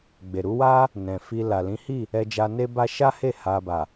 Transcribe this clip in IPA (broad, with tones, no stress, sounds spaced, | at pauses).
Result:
ɡ͡b e˨ ɾ u˨˦ w a˦ | n ɛ̃˨ f i˧ l a˨ l ĩ˨˦ h i˦˨ | ɛ˧ d͡ʒ a˧ n e˦ b a˦ ʃ a˦ h e˦˨ h a˧ b a˨